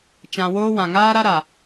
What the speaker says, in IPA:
t͡ʃ ã˨ w oː˦ w ã˨ ŋ aː˦ ɾ a˦ ɾ a˨

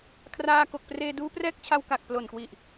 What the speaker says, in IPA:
kʰ r aː˧ k o˨˩ k̚ p r eː˧ d uː˦˥ p r ɛː˦˥ k̚ t͡ɕʰ a˧ w k a˨˩ k̚ p l o˨˩ n k w i˨˩ ʔ

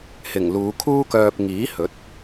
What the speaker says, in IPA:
h ɪ˨˩ ŋ l uː˨˧ kʰ uː˥ k œː˧ p̚ ŋ iː˨˥ h ɵ˨˥ t̚

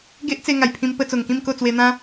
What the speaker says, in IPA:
ɡ e˦ ʔ t͡s e˧ ŋ a˨˩ j pʰ ĩ˧ m p ə˧ t͡s o˨˩ ŋ k ĩ˥˧ m k o˥˧ t͡s w e˧ n̪ ã˦

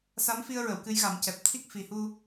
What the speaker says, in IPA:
s a˧˥ m f i˧ ə̯ ɹ ə˨˩˨ w k ɨ˧˥ j ɣ a˨˩˦ m c ɛ˨˩ p̚ t̪ʰ i˦˥ k̚ f i˨˩ h u˧

